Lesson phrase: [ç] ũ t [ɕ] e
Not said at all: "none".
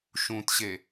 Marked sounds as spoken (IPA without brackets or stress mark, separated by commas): ʃ, ɕ